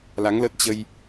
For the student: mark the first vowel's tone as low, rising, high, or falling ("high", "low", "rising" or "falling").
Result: rising